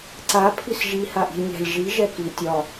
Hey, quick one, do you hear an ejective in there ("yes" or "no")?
no